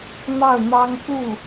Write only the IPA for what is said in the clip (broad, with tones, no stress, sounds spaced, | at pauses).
n̪ ɑ˥˩ ʊ̯ n̪ ɑ˥ ŋ k u˥˩